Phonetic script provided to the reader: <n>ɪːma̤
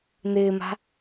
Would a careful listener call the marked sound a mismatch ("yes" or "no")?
no